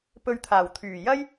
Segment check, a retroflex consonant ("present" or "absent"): absent